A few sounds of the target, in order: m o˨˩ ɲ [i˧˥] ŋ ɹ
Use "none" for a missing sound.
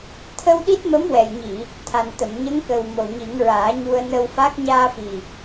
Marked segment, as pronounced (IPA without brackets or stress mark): i˨˩˦